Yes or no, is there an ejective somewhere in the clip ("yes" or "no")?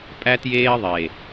yes